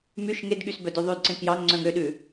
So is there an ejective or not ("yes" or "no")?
no